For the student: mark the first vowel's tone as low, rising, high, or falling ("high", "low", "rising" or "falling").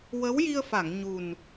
rising